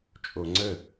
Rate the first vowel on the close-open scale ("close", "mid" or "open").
mid